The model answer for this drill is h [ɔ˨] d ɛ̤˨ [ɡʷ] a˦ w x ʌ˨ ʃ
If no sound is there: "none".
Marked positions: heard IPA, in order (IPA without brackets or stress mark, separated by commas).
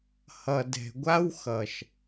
ʌ˨, ɡʷ